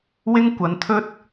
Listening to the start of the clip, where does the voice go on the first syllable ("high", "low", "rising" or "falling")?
high